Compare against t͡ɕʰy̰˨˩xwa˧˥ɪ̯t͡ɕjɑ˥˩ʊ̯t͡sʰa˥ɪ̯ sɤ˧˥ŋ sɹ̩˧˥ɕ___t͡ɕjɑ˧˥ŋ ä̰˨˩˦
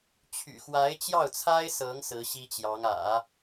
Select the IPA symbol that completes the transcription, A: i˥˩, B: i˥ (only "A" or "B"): B